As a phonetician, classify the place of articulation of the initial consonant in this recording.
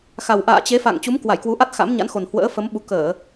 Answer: velar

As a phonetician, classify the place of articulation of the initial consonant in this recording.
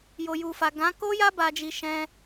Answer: palatal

